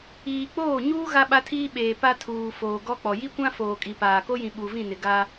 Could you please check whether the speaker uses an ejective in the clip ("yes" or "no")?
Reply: yes